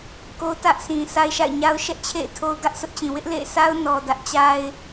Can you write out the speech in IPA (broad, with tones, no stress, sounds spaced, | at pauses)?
k o˦ t ä˦ ʔ s ĩ˨ s a˦ ɪ̯ ʃ a̰˦˨ ɪ̯ ɲ a˦ ʊ̯ ʃ ɛ˦ ʔ t͡ɕʰ ḛ˦˨ ɪ̯ tʰ o˦ ʊ̯ ɡ ä˦ ʔ s ʊ˦ ʔ t͡ɕ ĩ˨ w ɪ˦ ʔ l ḛ˦˨ ɪ̯ s a˦ ʊ̯ n ɔ˨ d ä˦ ʔ t͡ɕ a˦ ɪ̯